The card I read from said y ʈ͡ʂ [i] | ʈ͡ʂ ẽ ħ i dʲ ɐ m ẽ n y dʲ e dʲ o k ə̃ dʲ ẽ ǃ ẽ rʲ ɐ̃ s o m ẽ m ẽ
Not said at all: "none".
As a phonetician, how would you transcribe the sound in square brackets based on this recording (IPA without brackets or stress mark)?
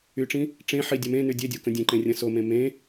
ĩ